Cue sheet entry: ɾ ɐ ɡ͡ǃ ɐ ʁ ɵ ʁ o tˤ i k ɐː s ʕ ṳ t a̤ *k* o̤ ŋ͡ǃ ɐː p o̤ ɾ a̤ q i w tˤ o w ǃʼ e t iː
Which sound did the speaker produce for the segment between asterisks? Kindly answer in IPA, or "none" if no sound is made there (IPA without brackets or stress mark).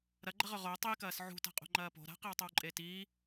qʼ